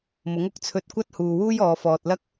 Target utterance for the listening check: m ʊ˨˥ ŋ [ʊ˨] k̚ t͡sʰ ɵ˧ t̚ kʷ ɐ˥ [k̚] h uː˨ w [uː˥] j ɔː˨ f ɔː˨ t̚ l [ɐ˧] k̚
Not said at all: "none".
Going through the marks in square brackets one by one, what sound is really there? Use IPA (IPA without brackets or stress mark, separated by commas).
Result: ʊ˨, t̚, uː˥, ɐ˥